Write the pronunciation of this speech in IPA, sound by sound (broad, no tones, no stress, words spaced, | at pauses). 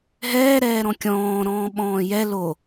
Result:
ɦɛːɾɛːɾɔ̃ kʲɔ̃ː ɾɔ̃ːɓɔ̃ːjɛ lo